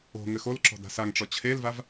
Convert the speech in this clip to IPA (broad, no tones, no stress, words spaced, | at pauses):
o̤ ŋɘxolǁɔ̤d a̤saŋʈ͡ʂɔ t͡ɕʰelvav